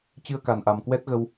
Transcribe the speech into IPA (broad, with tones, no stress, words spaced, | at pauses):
t͡ɕɨ˧ə̯ka˨˩nʔa˨˩mkwɛ˦˥t̚ ɣə˧w